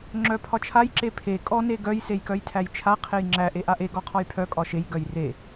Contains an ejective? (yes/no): yes